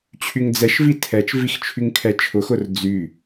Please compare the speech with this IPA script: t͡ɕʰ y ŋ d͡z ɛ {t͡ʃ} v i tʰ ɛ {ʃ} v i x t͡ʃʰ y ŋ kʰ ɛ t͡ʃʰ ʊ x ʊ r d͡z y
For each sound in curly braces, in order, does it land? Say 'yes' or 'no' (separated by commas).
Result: no, no